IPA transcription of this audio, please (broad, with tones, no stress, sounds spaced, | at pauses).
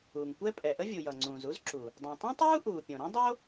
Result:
uː˩ ŋ kʷ ɛ˥ pʼ ɛ˩ ʔ ə˥ vʲ u˩ j ʌ˩ ŋ͡ǀ ũː˩ z u˥ z ǁ u˩ | dˤ õ˩ tˤ ũ˥ tˤ uː˥ ʔ uː˩ pʲ õ˩ ɾ õ˥ dˤ o˥